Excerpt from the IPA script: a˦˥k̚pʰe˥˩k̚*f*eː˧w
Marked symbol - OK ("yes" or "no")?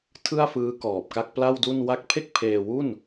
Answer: no